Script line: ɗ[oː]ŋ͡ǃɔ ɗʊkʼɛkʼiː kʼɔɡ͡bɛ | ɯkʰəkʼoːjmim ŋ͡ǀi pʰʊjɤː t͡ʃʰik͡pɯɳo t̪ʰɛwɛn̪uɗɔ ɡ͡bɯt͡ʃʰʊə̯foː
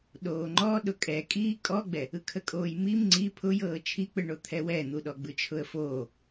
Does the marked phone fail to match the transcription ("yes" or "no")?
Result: no